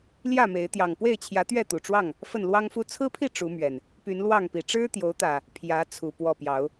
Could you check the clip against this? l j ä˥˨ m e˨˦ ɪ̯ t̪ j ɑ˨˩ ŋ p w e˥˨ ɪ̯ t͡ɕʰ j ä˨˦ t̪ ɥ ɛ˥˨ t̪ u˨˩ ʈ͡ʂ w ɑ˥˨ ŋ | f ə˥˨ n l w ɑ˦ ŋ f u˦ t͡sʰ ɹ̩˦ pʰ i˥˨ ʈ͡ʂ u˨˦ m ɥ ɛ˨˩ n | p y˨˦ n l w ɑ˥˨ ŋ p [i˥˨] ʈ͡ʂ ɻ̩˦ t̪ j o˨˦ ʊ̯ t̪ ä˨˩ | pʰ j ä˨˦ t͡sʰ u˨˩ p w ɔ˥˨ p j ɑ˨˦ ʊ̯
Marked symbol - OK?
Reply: no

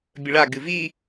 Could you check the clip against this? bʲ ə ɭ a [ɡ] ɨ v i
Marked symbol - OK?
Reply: yes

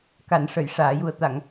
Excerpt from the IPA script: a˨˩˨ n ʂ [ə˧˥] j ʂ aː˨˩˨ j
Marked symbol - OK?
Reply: no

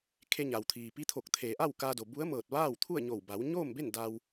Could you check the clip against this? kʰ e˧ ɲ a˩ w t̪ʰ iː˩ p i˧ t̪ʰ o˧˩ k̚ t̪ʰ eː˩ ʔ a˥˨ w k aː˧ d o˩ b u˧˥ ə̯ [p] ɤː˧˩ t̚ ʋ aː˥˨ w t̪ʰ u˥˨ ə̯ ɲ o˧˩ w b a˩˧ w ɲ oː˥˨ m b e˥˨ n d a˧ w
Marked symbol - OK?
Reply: no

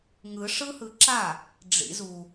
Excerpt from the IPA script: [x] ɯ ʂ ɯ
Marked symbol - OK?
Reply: no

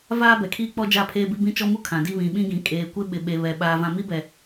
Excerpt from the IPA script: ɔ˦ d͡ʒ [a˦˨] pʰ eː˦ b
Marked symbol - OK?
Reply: yes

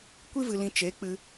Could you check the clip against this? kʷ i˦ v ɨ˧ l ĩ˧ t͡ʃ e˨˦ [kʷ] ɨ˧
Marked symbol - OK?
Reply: no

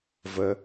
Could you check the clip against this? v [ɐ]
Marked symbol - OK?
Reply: no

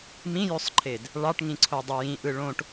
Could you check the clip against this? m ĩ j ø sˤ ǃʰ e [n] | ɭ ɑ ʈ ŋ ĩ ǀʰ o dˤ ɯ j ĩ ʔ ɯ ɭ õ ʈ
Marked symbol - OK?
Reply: no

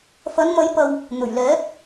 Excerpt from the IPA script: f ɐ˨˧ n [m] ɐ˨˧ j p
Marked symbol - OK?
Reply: yes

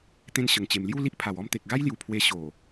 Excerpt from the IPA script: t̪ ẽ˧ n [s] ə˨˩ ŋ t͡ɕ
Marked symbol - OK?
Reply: no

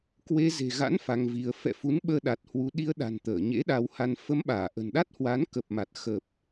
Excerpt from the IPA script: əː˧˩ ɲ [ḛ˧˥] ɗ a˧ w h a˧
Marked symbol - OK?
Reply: yes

